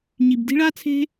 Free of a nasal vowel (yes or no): yes